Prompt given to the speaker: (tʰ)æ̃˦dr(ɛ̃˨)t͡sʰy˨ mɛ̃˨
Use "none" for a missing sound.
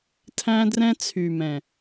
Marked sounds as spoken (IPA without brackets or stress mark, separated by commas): tʰ, ɛ̃˦